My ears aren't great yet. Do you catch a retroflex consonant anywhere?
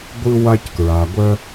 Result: no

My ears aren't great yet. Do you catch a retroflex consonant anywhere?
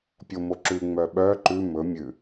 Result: no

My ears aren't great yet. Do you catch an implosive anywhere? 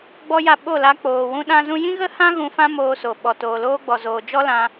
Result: yes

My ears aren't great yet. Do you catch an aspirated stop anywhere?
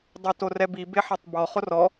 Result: no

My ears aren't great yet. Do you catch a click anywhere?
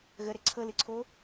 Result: yes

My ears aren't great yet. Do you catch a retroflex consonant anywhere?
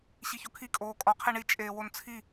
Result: yes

